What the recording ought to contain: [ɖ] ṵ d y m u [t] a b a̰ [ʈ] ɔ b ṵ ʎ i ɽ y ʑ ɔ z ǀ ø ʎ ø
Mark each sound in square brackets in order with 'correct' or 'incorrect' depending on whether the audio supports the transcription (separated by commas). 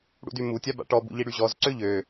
incorrect, incorrect, correct